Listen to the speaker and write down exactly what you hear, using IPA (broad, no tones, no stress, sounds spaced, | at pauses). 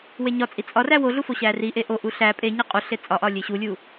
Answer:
w e ɲ ɒ t͡sʼ i t͡sʼ ɒ r æ w o ɮ u f o ɕ æ r i ʔ e ʔ o ʔ u ɬ æ pʼ e ɲ e qʼ u ɬ e t͡sʼ ɒ ʔ ɒ lʲ e ɕ u lʲ u